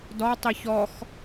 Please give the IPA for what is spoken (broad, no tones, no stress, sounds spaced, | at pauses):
d ɔ tˤ i ç ɔ x